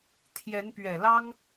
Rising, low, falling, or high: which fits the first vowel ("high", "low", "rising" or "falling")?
rising